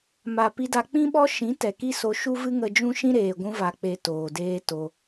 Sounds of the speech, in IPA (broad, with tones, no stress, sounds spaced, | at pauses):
m a˨ p i˧ d a˧ k͡p ĩ˦ ɓ ɔ˦ ʃ ĩ˨˦ t ɛ˨ k i˦ s o˧ ʃ u˦ v ɨ˦ ŋ ə˧ d͡ʒ ũ˦ ʃ ĩ˦ ɾ eː˨ ɡʷ ũ˧ v a˨ k͡p e˨ t oː˨ d eː˦ t o˧